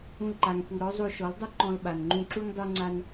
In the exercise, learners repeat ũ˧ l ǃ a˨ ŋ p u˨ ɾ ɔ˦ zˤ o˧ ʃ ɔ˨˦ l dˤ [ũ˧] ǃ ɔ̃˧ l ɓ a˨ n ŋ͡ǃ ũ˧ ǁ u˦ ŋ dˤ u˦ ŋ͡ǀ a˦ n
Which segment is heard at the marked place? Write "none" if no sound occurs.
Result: u˧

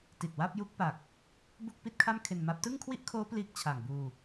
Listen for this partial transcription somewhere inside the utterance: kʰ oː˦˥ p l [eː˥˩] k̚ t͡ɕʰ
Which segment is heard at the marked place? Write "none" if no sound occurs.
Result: iː˥˩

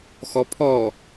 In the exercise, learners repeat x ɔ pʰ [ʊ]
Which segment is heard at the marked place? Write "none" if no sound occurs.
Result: ɔ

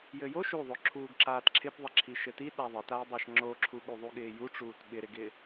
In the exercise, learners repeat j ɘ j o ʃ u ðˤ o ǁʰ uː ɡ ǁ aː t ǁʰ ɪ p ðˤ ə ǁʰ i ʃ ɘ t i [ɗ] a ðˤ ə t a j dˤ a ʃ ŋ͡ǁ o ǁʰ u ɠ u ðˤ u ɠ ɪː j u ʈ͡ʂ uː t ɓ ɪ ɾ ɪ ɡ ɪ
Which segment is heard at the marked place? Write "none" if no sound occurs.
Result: ɗ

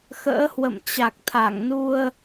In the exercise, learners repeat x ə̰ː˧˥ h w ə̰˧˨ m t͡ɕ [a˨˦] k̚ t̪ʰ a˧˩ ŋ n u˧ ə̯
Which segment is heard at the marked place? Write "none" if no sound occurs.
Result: a˨˩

